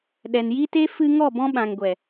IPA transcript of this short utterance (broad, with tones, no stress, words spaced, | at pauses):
ɗɛ˨nji˦te˦ fɨ˧ ŋɔ˦˨ bɔ̃˧ ɓã˨ŋɡʷɛ˨